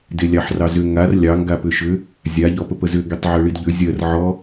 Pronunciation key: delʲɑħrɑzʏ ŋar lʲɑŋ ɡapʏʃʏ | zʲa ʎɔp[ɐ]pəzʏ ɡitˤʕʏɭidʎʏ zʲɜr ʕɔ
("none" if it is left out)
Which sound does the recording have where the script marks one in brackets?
ə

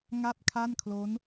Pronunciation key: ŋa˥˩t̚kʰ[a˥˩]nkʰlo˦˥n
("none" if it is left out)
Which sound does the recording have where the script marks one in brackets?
a˥˩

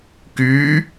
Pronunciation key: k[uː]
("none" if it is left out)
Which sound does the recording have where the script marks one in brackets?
yː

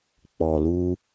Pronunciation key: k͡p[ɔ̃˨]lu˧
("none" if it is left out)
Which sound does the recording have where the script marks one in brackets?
ɔ˨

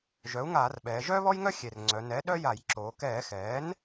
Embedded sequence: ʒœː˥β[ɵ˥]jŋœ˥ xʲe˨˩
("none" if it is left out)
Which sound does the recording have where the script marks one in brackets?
ɔ˥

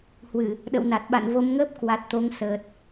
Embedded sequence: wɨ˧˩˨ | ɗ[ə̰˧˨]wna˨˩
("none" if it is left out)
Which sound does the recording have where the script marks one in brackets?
ə̰˧˨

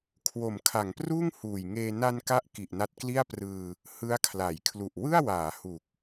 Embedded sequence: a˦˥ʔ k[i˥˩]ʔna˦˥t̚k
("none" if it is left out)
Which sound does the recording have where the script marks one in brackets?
i˨˩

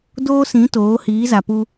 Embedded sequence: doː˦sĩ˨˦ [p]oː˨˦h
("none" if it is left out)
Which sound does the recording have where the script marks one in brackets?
t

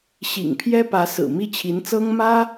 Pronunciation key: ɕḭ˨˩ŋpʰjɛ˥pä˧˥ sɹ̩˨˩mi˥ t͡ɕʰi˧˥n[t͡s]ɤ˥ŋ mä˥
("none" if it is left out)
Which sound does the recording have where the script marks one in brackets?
t͡s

